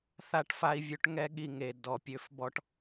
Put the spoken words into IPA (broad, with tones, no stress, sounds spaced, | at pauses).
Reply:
θ a˦ ʈ f a˦ i̯ vʲ ø˦ ʈ ŋ ɛ˦ ɠ i˧ ŋ e˨ d ɔ˨ pʲ ø˦ f b ɔ˦ ʈ